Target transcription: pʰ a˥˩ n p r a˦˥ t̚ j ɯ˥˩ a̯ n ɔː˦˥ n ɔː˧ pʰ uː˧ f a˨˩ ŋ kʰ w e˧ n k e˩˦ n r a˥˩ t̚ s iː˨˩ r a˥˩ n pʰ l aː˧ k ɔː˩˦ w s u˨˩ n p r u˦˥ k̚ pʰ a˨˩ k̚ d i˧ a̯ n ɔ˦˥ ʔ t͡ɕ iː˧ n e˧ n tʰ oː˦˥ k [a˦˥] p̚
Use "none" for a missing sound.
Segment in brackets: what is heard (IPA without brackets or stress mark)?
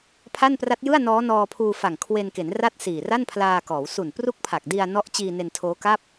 a˥˩